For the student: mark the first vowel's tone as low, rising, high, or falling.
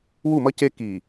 falling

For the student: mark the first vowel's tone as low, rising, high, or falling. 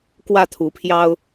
falling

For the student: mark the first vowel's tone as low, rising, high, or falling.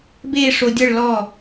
falling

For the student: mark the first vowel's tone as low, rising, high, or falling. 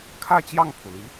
falling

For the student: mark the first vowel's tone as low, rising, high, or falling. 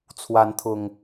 rising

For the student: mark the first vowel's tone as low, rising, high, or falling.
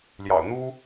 low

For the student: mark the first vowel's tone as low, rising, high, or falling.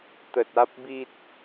low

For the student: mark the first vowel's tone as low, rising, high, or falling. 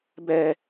high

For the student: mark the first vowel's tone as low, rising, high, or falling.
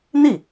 falling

